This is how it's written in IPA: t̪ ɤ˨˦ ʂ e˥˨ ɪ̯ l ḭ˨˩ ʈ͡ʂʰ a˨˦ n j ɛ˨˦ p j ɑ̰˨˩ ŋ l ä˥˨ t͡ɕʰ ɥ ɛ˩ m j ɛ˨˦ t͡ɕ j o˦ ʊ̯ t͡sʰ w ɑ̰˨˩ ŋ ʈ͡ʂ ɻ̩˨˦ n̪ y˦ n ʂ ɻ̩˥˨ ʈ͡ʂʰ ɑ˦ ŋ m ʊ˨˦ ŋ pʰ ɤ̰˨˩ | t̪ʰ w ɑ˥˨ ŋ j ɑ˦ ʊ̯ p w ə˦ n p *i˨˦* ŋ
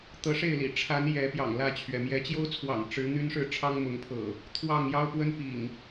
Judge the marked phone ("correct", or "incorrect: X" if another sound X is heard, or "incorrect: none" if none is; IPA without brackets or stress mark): incorrect: ḭ˨˩